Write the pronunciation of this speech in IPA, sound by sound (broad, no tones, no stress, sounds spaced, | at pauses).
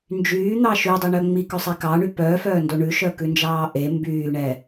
n d͡ʒ yː n̪ ɑ ʃ y dˤ e ɳ œ ŋ͡m i k œ sˤ i k ɑ ɳ y p œː f œː n d o ɳ ʉ ʃ œ k ʉ n d͡ʒ ɑː ʔ e m b yː ɳ ɛ